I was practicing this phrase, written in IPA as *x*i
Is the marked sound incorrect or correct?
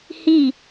incorrect